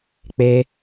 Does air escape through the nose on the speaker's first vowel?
no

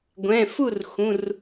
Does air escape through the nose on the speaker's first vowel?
yes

